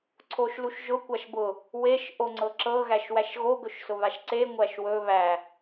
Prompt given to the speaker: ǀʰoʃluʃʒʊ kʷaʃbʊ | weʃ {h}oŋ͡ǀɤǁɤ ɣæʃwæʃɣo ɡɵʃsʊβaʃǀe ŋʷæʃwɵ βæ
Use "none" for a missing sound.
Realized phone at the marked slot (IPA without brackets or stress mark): ʔ